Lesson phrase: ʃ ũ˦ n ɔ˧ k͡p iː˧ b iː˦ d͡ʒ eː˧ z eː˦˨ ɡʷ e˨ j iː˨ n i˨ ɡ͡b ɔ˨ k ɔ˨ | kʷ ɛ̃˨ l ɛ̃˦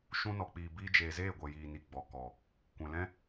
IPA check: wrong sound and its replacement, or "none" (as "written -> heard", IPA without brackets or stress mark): none